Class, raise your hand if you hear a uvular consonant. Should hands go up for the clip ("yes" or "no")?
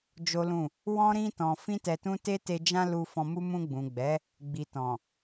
no